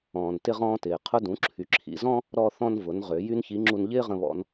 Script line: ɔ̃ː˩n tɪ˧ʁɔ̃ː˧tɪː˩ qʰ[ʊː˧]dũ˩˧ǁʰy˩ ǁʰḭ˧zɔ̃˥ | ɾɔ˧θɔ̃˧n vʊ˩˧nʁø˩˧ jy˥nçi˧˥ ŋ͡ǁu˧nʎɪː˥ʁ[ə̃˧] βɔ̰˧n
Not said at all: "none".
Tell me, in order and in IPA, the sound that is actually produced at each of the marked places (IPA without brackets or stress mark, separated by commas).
ʊ˧, ə̃˧